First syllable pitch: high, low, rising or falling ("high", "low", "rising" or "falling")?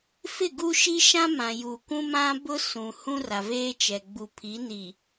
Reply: falling